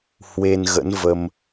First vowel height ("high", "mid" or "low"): mid